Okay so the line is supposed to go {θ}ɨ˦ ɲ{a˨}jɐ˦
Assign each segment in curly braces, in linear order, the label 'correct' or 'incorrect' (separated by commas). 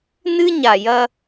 incorrect, correct